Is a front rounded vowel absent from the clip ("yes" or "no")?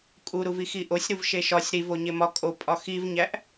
yes